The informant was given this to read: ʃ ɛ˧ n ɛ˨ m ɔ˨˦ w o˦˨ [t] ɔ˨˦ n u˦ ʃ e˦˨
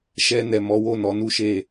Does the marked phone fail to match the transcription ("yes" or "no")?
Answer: yes